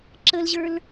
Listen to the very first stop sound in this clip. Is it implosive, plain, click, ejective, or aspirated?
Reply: click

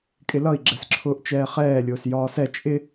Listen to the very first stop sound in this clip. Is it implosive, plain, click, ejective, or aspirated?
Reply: ejective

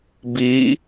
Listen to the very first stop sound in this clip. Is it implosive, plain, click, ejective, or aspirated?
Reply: plain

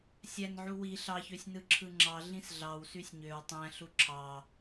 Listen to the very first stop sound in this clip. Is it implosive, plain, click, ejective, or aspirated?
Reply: click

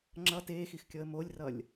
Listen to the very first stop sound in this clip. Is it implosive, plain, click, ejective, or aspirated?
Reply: click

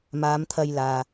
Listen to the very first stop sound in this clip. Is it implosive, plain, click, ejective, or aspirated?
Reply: aspirated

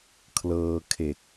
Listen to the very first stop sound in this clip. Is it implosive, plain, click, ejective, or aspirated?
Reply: aspirated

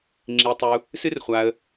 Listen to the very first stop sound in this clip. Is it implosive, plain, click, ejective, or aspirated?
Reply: click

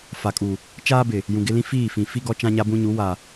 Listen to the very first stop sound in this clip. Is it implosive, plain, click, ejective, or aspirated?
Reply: ejective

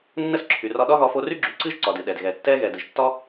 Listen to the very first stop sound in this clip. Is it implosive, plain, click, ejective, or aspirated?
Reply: click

